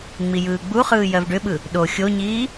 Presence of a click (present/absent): absent